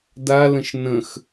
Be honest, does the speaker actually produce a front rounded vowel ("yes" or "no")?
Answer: no